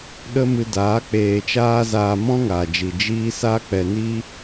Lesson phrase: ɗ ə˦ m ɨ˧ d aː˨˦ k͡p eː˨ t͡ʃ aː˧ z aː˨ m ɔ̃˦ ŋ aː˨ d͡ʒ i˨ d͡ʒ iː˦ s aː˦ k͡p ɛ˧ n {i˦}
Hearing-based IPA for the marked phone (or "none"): i˦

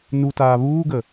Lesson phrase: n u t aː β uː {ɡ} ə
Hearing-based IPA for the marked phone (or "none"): ɡ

